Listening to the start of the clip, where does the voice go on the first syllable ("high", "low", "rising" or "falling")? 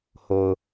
low